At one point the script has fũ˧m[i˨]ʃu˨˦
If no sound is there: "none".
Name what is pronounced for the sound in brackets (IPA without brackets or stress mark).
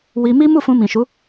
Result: ĩ˨